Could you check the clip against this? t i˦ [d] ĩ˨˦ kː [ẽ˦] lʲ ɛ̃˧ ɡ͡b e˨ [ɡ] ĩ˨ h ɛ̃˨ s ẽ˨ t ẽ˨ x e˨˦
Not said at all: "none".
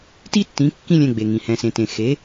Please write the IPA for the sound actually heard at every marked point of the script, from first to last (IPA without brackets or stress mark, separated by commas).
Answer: tː, ĩ˦, ŋ